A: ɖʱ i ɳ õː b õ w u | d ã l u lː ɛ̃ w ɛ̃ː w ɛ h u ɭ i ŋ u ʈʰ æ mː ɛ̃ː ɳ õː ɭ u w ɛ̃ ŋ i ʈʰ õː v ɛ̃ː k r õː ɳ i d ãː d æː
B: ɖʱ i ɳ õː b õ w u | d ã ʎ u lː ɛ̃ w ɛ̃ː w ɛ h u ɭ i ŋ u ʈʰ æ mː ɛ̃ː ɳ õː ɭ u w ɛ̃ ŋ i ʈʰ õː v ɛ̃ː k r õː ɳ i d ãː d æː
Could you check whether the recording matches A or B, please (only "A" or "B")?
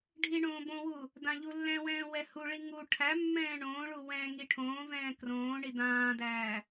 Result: B